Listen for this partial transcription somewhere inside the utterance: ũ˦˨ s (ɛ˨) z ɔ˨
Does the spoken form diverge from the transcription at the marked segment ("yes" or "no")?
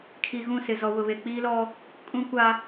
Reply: yes